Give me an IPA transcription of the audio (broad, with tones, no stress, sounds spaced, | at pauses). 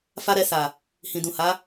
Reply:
f a˦ ɾ ɛ˧ s a˨ | h ĩ˨ d ũ˨ h a˨˦